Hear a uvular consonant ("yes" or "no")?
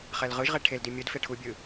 yes